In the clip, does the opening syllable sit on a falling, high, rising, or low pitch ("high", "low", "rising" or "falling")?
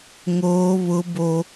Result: high